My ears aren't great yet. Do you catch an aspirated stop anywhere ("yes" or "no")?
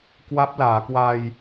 no